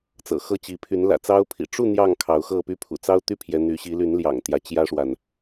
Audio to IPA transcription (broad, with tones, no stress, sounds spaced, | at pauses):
t͡s ɤ̰˨˩ x ɤ˥˨ t͡ɕ i˨˦ pʰ y˨˦ n l ä̰˨˩ t͡s ɑ˦ ʊ̯ pʰ ḭ˨˩ ʈ͡ʂ u˥˨ n̪ j ɑ˥˨ ŋ kʰ ɑ˨˦ ʊ̯ x ɤ˥˨ p y˦ pʰ ṵ˨˩ t͡s ɑ˦ ʊ̯ t̪ y˦ pʰ j ɛ˨˦ n̪ y˨˦ ɕ i˨˦ l y˨˦ n l j ɑ̰˨˩ ŋ t̪ j ä˨˦ t͡ɕ j ä˦ ʂ w a˨ n